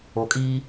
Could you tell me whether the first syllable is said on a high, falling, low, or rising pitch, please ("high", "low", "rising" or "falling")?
low